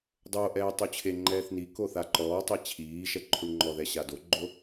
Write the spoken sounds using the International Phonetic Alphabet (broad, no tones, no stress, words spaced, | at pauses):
dˤoʔɛː tˤut͡ɕʰeŋ͡ǃɛːθ niko θaǃɔːtˤɛ t͡ɕʰiːʃɛ ǃʰuɳŋ͡ǃɔðɛ ɕadoɡ͡ǃo